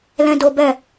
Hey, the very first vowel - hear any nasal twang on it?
yes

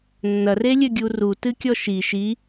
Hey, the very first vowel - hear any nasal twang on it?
no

